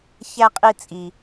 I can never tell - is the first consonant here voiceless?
yes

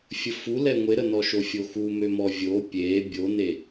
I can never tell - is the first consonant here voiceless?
yes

